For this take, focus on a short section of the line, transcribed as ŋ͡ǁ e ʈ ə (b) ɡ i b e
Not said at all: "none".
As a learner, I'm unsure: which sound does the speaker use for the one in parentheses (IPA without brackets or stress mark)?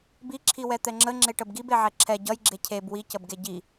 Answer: b